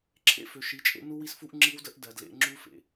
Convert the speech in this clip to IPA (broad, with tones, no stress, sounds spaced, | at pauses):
ǁʰ ḛ˦˨ f ø˨ ʃ i˨˦ t͡ʃʼ ḛ˦ n u˦ w i˦ s f u˦ ʔ ŋ͡ǁ i˦ w d ə˦ ʔ d ɜ˨ d l ḛ˦ ŋ͡ǁ u˦ f ḛ˨